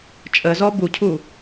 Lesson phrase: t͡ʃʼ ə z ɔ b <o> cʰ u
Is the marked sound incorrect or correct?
incorrect